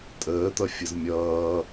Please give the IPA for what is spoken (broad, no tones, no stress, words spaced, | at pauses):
tʼəːt̪ʌfʲɯz mʲʌː